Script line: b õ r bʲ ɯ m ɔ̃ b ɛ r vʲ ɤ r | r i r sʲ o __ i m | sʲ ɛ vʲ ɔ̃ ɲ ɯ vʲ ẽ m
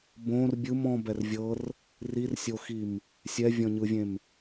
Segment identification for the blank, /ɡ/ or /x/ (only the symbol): x